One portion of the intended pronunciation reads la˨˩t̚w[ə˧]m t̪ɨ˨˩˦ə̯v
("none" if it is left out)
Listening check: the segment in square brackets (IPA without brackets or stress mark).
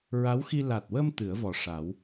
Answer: ə˧